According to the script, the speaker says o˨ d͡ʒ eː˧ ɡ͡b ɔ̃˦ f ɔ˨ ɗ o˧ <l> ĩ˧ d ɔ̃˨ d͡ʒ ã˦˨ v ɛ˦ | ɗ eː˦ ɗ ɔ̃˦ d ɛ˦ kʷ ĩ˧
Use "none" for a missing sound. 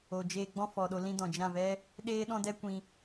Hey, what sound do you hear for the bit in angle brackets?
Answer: l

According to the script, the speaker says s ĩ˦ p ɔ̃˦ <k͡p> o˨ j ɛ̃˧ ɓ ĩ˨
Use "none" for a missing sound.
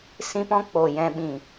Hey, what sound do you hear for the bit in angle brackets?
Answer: k͡p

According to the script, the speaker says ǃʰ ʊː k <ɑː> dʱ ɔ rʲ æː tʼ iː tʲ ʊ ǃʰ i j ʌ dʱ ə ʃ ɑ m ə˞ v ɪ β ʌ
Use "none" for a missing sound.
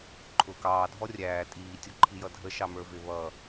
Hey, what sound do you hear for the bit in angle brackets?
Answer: ɑː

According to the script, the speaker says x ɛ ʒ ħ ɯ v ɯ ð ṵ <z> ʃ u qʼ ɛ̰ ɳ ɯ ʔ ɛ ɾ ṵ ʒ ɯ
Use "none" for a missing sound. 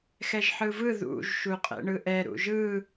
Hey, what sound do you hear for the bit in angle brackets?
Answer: ʒ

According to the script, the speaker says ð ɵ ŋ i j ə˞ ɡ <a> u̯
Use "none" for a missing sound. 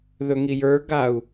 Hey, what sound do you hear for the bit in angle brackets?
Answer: a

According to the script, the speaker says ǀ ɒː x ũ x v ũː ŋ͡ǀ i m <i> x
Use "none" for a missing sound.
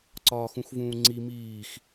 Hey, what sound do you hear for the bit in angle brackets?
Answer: iː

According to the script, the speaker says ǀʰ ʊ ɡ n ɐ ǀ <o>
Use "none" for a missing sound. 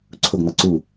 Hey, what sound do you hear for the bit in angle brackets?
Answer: u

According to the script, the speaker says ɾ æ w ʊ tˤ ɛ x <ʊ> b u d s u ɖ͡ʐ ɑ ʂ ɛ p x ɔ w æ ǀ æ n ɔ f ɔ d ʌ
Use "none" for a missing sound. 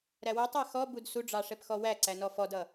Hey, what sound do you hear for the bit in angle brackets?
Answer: ɔ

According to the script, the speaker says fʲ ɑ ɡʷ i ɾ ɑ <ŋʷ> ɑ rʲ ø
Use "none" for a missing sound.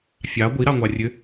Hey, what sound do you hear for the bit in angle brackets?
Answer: ŋʷ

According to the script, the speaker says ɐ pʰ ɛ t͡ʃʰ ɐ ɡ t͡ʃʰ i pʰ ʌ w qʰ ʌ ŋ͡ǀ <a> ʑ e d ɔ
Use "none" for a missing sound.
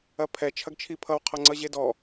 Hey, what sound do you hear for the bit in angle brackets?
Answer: ʌ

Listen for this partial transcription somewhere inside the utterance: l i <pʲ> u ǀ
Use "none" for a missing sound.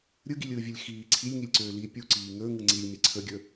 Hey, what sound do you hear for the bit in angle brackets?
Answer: pʲ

